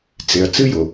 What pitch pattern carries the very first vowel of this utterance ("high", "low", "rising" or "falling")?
low